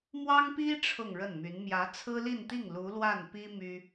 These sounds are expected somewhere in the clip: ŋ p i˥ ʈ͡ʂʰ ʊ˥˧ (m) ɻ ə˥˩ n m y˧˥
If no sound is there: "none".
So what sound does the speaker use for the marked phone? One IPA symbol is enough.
ŋ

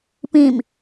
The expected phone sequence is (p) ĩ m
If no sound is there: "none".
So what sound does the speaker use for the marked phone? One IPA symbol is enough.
p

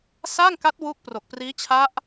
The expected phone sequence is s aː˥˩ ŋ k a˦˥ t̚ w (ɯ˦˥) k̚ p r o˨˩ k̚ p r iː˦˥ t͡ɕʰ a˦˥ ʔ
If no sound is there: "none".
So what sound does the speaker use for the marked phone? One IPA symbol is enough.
u˦˥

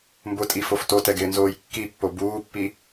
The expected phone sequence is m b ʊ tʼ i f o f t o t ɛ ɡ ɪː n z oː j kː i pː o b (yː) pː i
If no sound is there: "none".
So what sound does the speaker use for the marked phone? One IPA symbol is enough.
uː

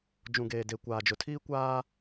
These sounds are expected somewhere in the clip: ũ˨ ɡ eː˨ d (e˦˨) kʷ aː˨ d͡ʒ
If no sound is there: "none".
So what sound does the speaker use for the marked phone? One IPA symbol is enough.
e˨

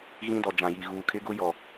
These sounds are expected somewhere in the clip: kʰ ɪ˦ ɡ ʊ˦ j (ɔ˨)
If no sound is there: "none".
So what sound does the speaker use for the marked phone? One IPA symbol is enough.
ɔ˨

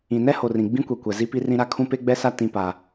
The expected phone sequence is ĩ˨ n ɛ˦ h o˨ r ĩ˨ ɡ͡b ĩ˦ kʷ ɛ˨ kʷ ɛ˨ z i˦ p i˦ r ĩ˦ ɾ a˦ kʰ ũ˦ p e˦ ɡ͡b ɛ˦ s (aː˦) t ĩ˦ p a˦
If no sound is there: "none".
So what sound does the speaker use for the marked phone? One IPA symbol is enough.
a˦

